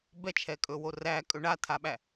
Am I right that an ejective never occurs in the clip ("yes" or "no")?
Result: no